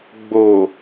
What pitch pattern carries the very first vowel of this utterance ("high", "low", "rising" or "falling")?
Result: low